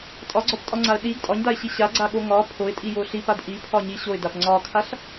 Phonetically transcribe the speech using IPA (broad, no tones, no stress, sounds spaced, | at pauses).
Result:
tʼ ɒ ɡ͡ǀ ɒ p tʼ ɒ ŋ͡ǀ a ə̯ ɗ i ɡ tʼ ɒ ɲ d a ɪ̯ ɕ i ɕ a ɡ͡ǀ a ɠ o ŋ ɒ pʰ o ɪ̯ tʼ i j o ɬ i p a d ʔ i pʰ ɒ ɲ i ɕ o ɪ̯ d a p ŋ͡ǀ ɒ kʰ a ɬ